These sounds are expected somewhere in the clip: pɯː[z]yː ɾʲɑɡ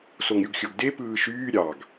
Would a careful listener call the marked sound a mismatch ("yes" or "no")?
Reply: yes